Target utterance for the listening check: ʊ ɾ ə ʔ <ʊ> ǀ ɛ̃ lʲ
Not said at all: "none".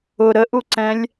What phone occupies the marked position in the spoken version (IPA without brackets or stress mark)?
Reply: u